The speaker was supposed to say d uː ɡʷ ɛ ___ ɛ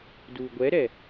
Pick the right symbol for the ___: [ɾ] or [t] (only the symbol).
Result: ɾ